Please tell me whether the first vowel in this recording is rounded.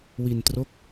no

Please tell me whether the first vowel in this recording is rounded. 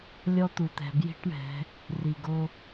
yes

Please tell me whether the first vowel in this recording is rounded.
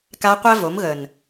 no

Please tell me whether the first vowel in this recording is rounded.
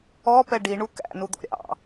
yes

